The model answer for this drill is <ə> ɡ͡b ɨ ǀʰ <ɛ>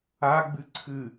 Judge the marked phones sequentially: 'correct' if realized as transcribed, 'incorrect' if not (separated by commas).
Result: incorrect, incorrect